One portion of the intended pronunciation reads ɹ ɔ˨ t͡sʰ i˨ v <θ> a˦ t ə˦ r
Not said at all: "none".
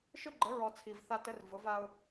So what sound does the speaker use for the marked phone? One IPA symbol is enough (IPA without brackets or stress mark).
θ